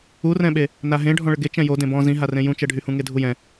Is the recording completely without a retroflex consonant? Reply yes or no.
no